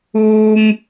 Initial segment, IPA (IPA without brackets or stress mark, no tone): uː